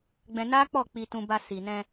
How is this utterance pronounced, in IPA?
ɡ͡b ɛ̃˧ n a˦ k͡p ɔ˦˨ k͡p i˧ t ũ˧ b a˧ s i˨ n ɛ̃˧

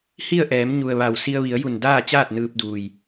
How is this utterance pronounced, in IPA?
h i˥˨ ə̯ ʔ ɛː˩˧ m ɲ u˩ ə̯ ʋ a˩ w s i˧ ə̯ ʋ i˩˧ ə̯ j u˧˩ n d aː˥˨ t͡ɕ aː˥˨ t̚ n ɯː˧ p̚ d uː˩ j

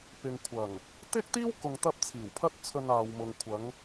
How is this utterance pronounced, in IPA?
p ɪ˨ ŋ kʷʰ ɐ˨˩ ŋ | t̪ ɪ˥ k̚ t̪ iː˥ w k ʊ˨ ŋ t̪ ɐ˧ p̚ t͡sʰ iː˨˩ w pʰ ɐ˥ t̚ t͡sʰ ɵ˧ n aː˨ w m ʊ˨ ŋ kʷʰ ɐ˨˧ ŋ

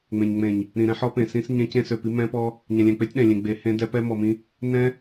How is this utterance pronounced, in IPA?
ŋ͡m ẽ˨ ɲ ŋ͡m ẽ˨ ɲ | ɾ ĩ˨ ɾ ɛ̃˦ ħ ɔ˦ p ẽ˨ s ĩ˦ s ɲ ẽ˦ c ẽ˦ s ø˨ p i˦ m ɛ̃˦ p ɔ˦ | ɲ ɛ̃˨ lʲ ɛ̃˨ k͡p e˦ tʲ ɗ ɛ̃˨ lʲ ẽ˨ ɡ͡b e˨ h ẽ˦ d ɛ˦ p ɛ˦ m ɔ˨ m ĩ˦ | n ɛ̃˦

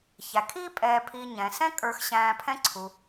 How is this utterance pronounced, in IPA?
ç æ˩ kʰ iː˥ pʼ ɛː˨ pʰ i˨ ɲ ɛ̃˩ s ɛ̃˥ kʼ ə˞˨ x ɕ æ̃ː˨ pʰ ɛ̃˦ ǀʰ u˩

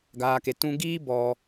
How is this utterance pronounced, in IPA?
ɡ aː˧ k e˧ t ũ˦ ɡ iː˦ b ɔ˧

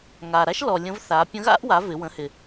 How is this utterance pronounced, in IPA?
ŋ a˨˩ ɾ a˥ ʃ l ɔ˨˩ lʲ ə̃˧˥ v θ a˩˥ pʲ ə̃˧˥ ɣ a̰˥ ʔ w a˩˥ v ɪ˩˥ w ə̃˩˥ h ɪ˨˩

